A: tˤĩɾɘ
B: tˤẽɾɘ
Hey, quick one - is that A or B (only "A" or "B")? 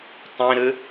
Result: A